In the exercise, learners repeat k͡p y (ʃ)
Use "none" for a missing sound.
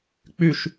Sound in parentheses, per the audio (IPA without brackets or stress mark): ʃ